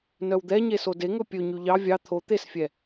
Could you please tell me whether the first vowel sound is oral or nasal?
oral